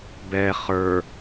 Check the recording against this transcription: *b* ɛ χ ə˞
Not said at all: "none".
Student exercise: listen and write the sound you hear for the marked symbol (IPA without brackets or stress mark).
b